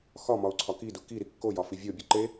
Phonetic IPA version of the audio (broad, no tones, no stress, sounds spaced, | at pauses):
x ɒ m ɒ ʊ̯ ǀʰ ɒ k i d u k i ɾ i kː o j ɒ f i vʲ o bʲ u ǃ e